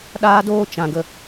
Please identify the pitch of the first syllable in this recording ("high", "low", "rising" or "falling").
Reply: high